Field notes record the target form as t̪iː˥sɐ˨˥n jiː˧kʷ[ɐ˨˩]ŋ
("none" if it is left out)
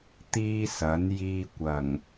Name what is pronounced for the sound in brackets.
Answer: ɐ˨˩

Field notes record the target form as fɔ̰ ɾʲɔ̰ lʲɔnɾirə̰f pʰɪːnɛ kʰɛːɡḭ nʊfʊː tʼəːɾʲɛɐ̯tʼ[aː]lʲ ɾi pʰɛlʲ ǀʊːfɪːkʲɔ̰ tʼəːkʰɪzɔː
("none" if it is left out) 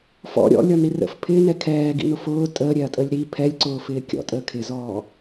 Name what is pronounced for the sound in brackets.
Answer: əː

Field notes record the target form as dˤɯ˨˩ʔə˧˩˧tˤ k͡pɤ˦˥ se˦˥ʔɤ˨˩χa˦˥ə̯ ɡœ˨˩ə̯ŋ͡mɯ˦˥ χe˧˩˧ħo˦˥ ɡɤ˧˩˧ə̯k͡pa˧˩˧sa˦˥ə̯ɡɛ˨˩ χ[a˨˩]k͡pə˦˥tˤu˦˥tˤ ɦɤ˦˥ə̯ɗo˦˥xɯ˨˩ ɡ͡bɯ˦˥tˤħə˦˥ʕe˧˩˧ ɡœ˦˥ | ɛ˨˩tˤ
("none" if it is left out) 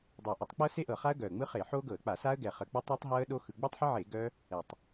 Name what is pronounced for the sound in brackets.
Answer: ə˨˩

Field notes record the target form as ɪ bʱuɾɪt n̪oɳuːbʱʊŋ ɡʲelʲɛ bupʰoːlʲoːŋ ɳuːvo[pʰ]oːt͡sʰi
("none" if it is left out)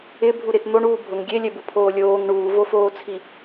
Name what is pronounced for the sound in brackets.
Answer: f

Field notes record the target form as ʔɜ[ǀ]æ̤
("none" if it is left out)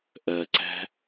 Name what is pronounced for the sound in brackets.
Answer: ǀ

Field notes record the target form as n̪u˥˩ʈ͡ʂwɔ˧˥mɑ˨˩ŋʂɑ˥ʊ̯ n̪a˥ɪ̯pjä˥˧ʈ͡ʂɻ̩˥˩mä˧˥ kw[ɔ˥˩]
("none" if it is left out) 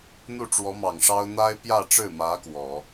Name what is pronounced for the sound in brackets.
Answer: ɔ˨˩˦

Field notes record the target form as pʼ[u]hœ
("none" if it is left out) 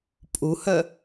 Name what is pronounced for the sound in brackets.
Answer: u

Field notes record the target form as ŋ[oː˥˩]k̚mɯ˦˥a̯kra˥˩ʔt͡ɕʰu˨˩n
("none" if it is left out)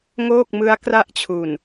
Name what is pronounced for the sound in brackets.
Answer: oː˥˩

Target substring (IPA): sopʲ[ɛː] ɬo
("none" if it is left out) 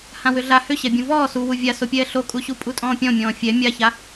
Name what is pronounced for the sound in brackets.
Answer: ɛː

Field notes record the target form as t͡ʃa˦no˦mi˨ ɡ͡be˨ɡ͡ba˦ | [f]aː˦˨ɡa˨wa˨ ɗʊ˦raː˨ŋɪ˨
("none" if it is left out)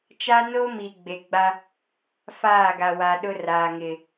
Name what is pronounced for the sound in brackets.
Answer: f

